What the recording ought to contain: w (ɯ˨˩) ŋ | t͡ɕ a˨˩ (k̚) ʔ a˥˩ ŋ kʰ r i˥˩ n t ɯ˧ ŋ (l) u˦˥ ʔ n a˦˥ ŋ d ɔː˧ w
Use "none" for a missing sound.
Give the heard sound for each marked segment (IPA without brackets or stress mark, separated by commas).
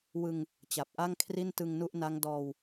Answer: ɯ˧, p̚, n